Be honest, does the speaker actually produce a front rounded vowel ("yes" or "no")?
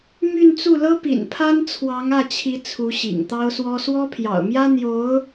yes